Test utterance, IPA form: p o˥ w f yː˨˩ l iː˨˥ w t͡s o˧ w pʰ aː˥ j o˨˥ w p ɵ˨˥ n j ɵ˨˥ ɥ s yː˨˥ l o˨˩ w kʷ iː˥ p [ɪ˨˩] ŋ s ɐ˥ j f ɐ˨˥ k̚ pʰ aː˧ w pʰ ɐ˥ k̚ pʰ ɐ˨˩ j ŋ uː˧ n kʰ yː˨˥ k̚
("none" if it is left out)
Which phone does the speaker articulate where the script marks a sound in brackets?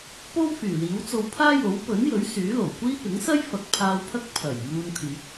ɪ˨˥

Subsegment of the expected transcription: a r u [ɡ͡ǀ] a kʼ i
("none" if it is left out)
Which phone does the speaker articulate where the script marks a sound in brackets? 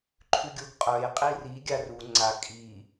ŋ͡ǀ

